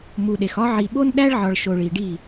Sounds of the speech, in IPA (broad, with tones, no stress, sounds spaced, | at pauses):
m u˨ ɗ e˨ x ɒ˦ ʕ i˨ ɓ o˦ n ɗ æ˦ ɭ ʕ ɒ˨ ɭ ʃ o˨ ɭ i˨ ɖ i˦˨